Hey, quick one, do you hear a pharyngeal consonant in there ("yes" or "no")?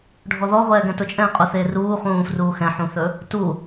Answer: yes